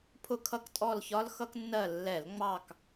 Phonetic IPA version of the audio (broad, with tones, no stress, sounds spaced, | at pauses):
pʰ ʊ˦˨ kʰ ʌ˦˨ k tʼ ɔ˦˨ l ç ɒ˦˥ l x ʌ˦˥ k nː ɜ˦˨ lː ɛ˧˩˧ l ŋ͡m ɑ˦˨ k